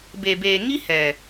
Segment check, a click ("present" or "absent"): absent